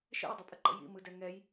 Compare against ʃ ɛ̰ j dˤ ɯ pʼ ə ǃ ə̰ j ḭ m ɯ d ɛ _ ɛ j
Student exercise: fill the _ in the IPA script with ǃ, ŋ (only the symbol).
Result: ŋ